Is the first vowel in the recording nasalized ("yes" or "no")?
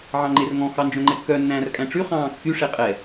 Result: yes